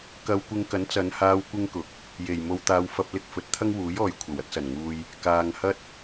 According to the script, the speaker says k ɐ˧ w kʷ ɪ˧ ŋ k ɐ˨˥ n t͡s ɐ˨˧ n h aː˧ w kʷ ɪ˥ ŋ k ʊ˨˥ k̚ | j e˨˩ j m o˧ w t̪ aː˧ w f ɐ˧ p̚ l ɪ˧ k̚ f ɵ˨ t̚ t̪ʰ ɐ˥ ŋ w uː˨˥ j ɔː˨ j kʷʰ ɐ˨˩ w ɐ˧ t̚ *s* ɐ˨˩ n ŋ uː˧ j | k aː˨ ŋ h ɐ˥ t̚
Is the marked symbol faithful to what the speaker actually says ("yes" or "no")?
yes